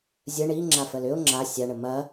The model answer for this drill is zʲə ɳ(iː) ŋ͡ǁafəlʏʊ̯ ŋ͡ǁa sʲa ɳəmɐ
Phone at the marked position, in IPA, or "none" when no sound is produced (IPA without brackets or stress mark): i